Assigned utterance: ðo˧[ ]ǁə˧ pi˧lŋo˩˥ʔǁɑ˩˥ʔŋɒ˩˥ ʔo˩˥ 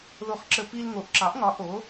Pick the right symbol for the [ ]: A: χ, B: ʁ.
A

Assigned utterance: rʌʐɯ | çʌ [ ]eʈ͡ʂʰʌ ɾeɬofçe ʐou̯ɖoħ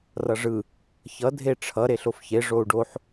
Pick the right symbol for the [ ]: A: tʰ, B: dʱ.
B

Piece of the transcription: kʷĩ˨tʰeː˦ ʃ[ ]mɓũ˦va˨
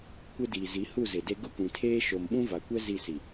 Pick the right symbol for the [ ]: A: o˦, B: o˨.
B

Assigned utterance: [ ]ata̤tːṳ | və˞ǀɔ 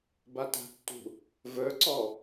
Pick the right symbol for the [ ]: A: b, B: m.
A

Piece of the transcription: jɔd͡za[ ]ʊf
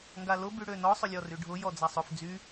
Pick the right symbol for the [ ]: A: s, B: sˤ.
B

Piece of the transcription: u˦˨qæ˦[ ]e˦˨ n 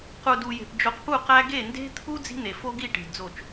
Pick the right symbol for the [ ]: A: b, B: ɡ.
B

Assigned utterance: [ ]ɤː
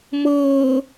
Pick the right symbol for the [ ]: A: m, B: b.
A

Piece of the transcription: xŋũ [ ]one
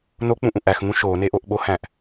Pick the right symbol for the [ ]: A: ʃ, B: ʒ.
A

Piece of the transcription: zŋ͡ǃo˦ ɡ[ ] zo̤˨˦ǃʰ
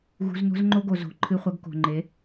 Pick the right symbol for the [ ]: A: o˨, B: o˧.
A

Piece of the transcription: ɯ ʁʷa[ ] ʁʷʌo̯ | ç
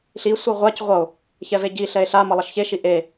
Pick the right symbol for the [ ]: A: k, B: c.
B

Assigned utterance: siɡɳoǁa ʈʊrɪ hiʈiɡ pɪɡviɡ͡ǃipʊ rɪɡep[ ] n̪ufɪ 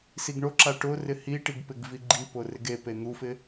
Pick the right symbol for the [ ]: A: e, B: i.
A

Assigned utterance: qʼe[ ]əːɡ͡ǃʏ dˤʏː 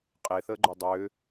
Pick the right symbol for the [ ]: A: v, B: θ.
B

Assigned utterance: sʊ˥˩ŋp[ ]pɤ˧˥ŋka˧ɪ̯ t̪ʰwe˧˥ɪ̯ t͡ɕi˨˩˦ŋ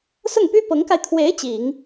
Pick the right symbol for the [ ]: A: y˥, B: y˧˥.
A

